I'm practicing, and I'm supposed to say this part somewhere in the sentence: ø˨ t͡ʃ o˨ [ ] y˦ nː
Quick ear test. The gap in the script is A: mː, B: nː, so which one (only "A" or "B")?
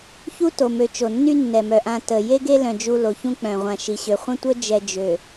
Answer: B